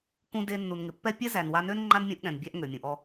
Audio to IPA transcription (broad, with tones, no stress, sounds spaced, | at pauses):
k ũ˧ d e˧ nː u˨ n ŋ ɪ˨ pː ɛ˦ pʲ ɛ˦ z æ˨ n w a˧ n ø˦ n ŋ͡ǃ a˦ n mʲ ũ˧ ʔ ɠ ɛ̃˨ n bʲ æ˧ ʔ ŋ ø˨ mʲ ũ˨ ʔ ɔ˧